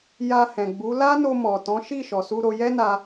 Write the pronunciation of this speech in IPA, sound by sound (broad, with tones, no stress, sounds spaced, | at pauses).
j a˧ h ɛ̃˨ ɡ͡b u˨˦ l a˦ n o˧ m ɔ˨ t ɔ̃˨˦ ʃ i˦˨ ʃ ɔ˨ s u˧ ɾ o˧ j ɛ˦ n a˧